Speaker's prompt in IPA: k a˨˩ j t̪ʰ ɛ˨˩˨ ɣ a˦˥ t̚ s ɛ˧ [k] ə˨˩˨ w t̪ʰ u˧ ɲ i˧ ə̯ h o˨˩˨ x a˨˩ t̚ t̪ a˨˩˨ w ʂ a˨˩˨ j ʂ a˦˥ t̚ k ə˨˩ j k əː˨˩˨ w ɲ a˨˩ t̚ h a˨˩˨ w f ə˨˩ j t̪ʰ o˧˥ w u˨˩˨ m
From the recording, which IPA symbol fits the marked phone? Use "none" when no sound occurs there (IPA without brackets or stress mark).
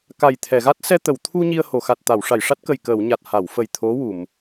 t̪